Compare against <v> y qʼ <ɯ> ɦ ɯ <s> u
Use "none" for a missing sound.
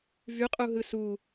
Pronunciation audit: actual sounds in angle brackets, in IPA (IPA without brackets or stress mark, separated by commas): v, u, s